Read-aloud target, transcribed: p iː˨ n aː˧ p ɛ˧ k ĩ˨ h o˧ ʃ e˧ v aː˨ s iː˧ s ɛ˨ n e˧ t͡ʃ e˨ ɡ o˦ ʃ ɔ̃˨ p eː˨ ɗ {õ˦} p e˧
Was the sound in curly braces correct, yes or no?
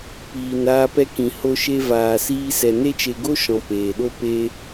no